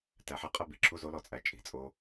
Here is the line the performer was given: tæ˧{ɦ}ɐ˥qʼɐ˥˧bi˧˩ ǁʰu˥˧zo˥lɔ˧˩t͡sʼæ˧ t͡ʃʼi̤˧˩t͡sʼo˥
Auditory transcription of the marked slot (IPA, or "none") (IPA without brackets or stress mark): ħ